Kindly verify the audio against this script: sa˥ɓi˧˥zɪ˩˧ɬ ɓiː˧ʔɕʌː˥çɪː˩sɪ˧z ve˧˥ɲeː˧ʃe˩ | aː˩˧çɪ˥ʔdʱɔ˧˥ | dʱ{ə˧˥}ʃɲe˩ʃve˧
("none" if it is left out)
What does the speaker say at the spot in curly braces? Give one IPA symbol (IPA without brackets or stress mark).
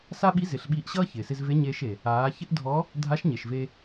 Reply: a˧˥